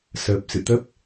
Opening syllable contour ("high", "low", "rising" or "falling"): low